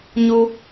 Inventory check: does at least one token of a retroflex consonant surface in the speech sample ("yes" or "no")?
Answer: no